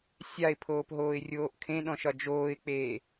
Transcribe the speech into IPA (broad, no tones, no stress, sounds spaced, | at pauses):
sʲ a ɪ̯ pʰ oː p ɦ oː ɪ̯ rʲ oː ʔ kʰ ẽ ɗ ɔ̃ ʃ ɒ d͡ʒ oː ɪ̯ k͡p eː